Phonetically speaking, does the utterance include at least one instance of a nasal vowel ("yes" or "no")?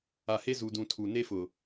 yes